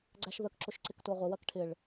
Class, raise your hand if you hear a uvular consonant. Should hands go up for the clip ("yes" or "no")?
yes